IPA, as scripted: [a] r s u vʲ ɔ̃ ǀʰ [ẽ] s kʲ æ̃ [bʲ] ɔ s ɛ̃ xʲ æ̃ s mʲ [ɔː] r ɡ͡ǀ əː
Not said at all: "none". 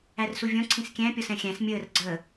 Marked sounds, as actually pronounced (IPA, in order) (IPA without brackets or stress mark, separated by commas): æ, ĩ, pʲ, əː